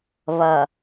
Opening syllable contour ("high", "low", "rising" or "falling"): low